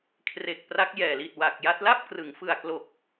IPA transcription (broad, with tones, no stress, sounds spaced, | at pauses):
kʰ r e˨˩ k̚ p r a˦˥ k̚ j ɛː˨˩ l i˨˩ t̚ w a˨˩ k̚ j a˦˥ t̚ l a˥˩ p̚ k r ɯ˩˦ ŋ f ɯ˨˩ a̯ k l o˨˩ k̚